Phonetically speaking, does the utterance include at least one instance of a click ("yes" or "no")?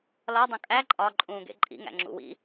yes